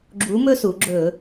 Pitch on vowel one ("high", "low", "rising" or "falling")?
rising